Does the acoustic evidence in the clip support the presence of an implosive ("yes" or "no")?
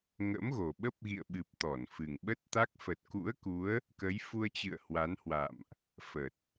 yes